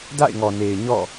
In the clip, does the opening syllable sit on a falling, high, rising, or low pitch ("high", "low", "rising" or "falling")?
falling